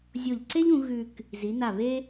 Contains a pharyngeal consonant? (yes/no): no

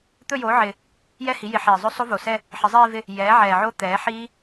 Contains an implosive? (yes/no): no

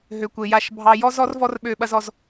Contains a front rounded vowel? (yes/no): yes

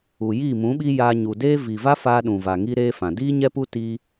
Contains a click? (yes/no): no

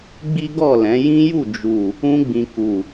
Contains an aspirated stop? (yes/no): no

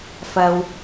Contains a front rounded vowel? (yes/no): no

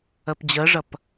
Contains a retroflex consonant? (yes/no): yes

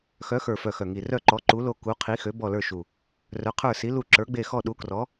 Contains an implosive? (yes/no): yes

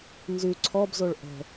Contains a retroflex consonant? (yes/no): yes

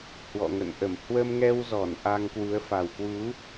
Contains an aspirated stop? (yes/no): no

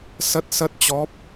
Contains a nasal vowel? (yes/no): no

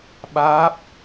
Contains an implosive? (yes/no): yes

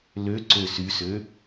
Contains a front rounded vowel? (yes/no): yes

